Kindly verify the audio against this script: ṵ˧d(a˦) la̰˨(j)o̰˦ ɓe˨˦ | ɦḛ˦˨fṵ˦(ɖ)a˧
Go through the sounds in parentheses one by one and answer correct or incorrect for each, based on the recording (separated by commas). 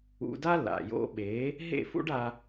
correct, correct, correct